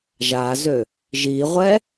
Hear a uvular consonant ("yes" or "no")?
yes